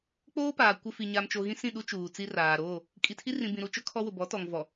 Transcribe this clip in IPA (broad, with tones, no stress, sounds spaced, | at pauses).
k͡p oː˦ p aː˨ kʷ ɪ˨ f i˨ ɲ a˨ m t͡ʃ o˨ ɣ ĩ˦ s ĩ˦˨ ɗ u˦ t͡ʃ uː˨ t͡s i˦ r aː˨ ɾ oː˦˨ | kʼ i˨ tʰ i˦ r ĩ˨ b ĩ˨ ɾ u˨ t͡ʃ ʊ˦ kʰ ɔ˦ w ʊ˨ b ɔ˨˦ t ɔ˨ ŋ v ɔ˨